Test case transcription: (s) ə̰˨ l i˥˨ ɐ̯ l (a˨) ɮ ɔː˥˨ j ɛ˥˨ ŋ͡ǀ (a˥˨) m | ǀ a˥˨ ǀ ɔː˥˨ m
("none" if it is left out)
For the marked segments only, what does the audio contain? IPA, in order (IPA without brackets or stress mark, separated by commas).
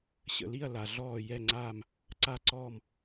ɕ, a˨, aː˥˨